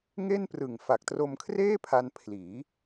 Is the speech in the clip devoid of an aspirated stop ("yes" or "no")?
no